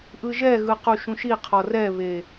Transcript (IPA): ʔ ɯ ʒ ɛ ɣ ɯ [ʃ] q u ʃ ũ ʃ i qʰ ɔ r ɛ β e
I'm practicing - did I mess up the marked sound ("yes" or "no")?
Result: yes